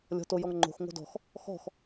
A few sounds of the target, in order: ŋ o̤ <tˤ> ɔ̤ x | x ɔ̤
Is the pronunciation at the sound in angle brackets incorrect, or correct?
incorrect